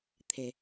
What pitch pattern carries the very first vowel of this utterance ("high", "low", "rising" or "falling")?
low